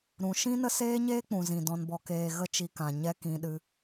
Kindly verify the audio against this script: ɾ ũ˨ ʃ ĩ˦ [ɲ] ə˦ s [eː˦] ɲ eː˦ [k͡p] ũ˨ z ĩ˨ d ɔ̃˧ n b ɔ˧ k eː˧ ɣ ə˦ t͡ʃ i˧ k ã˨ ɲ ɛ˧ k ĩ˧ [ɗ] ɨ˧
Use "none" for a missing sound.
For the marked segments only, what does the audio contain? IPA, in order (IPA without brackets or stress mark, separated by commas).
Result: n, eː˦, k͡p, ɗ